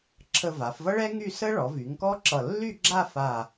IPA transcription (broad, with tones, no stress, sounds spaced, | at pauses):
ǁʰ ə˧ v a˩˧ f v ʌ˥ ɭ ɛ˥ ŋ y˥˧ s ə˥ ɭ ɔ˩˧ v y˩˧ ŋ k ɔ˥ ǁ ʌ˧˩ lː y˥˧ ɡ͡ǁ a˥˧ f a˧˩